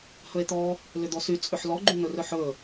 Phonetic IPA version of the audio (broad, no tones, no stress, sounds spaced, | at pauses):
h ɵ e̯ t̪ ɔ | l ʏ d̪ ɔ s y t͡sʼ ʏ ħ l ɔ ɡ͡ǃ y n̪ ɵ r ɵ ħ ɵ